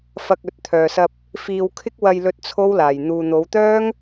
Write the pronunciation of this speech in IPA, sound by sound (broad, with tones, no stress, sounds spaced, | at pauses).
f ɐ˧ k̚ ɵ˨˥ t̚ t̪ʰ œː˨ s ɐ˧ p̚ | f iː˧ w kʰ ɪ˥ k̚ w ɐ˧ j l ɵ˧ t̚ t͡sʰ o˥ w l aː˨ j n̪ uː˨ n̪ o˨˧ w t̪ œː˥ ŋ